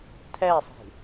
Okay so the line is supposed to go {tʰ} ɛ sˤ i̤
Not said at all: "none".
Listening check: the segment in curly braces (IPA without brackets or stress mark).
tʰ